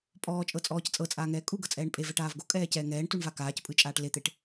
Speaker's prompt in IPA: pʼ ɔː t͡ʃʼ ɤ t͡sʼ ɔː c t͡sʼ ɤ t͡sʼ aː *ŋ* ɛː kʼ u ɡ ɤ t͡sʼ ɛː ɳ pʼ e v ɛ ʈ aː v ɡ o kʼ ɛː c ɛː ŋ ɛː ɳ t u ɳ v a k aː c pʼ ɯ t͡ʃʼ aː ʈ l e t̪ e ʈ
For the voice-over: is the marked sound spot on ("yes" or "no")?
yes